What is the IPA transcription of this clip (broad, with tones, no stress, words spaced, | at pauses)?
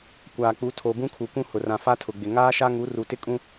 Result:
kʷaː˨k͡pu˨˦ tʰo˨ bũ˦kʰu˨kʷũ˦hʊ˨ rã˨fa˦tʰʊ˨ɡ͡bɪ˨ ŋaː˦ʃa˦ŋu˨˦ ru˨tɪ˦kʼũ˦